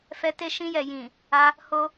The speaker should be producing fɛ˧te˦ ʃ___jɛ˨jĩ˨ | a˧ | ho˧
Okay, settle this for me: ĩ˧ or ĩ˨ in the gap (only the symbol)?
ĩ˧